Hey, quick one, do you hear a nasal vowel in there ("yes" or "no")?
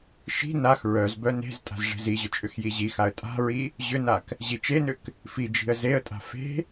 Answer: no